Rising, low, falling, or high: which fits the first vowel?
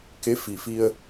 rising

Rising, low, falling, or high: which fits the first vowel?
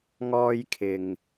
high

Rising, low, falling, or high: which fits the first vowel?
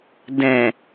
low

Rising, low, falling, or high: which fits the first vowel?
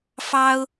high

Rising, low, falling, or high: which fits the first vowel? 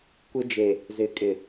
high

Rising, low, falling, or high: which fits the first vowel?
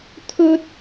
high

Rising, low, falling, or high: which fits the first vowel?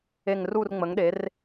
falling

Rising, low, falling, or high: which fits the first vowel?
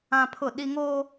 high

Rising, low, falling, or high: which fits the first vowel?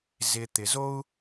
low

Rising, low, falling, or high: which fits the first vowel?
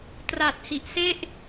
low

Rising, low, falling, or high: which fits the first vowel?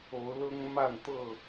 rising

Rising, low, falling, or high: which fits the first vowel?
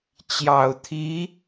low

